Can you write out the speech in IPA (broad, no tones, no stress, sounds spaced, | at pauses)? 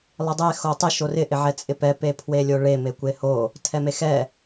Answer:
lˠ ɪ dˤ e x o tˤ ɪ ʃ o r ɪ ʔ ɪ ʕ ɛ t͡sʼ ɪ p ɛ p e pʰ w e lʲ o ɭ e m e kʷ e h o | tʰ ɛ m e x ɛ